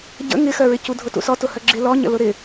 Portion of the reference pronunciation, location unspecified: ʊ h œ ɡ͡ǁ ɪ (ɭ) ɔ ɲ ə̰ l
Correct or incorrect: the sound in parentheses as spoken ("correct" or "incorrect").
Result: incorrect